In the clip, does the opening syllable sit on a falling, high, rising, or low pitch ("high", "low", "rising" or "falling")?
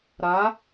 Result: rising